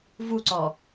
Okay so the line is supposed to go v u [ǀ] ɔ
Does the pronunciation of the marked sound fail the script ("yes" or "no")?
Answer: no